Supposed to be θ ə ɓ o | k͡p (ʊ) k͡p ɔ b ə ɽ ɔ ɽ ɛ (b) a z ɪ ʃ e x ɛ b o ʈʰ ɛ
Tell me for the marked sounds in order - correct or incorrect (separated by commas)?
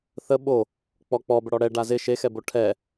incorrect, incorrect